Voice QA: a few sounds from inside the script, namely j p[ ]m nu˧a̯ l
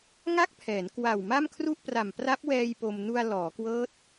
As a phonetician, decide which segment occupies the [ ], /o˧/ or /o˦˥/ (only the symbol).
o˧